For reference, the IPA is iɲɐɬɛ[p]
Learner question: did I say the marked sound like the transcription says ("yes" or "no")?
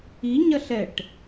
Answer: no